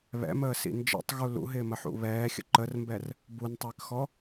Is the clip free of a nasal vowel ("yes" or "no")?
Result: yes